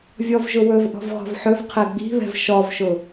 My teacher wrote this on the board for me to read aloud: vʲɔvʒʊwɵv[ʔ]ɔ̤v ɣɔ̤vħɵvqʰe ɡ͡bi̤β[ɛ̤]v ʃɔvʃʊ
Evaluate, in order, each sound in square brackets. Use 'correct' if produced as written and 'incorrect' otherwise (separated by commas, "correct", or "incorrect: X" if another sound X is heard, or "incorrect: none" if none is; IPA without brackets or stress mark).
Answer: correct, correct